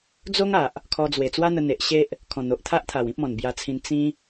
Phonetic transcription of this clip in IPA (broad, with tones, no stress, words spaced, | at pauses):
d͡zo˦ŋ a˨ʔ | kʰɔ˧d͡zwe˨˩ t͡swa˦n̪ə˧n̪e˨ʔ ɕe˦ʔ | kʰɔ̃˨˩n̪o˨ʔt̪ʰa˦ʔt̪ʰa˨˩w ĩ˦p̚mɔ̃˨˩nbja˧t͡sʰĩ˧n t͡sĩ˦